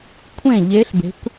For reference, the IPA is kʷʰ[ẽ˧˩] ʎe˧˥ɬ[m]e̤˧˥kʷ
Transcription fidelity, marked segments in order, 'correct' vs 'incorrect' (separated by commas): correct, incorrect